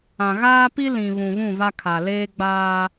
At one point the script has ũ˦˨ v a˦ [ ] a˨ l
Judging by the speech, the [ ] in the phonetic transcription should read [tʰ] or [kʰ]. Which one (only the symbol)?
kʰ